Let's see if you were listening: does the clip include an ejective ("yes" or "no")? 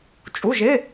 yes